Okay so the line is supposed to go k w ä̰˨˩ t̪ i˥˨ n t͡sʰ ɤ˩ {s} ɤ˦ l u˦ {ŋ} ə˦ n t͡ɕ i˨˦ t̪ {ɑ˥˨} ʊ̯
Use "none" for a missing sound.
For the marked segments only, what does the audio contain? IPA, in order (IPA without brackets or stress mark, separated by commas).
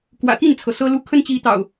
s, kʰ, ɑ̰˨˩